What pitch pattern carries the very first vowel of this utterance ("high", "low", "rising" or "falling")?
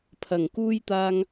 low